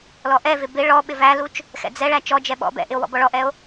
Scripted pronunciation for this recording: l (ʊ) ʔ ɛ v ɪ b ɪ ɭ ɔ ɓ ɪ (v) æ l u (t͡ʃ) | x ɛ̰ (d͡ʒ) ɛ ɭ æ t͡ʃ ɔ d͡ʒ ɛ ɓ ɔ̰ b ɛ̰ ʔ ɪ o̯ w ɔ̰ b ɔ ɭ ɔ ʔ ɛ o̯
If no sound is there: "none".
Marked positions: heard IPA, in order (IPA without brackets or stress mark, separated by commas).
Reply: ɔ, v, t͡ʃ, d͡z